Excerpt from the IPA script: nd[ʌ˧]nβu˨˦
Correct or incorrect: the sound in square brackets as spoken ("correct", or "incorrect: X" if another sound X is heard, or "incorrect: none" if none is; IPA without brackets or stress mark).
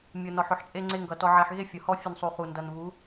incorrect: ʌ˨